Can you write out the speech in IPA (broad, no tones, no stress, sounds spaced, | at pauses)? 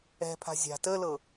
ɛ̤ pʰ a̤ zʲ a̤ t ə l ɤ